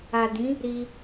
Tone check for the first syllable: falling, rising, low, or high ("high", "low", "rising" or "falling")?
low